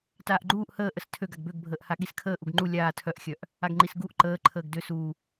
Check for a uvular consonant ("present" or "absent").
absent